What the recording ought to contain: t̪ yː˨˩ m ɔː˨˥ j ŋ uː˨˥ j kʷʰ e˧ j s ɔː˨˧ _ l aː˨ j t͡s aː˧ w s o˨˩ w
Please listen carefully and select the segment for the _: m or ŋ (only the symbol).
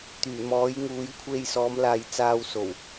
m